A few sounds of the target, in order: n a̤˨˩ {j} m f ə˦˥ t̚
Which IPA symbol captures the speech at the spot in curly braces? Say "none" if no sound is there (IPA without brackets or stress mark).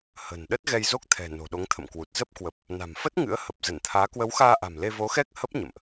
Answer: none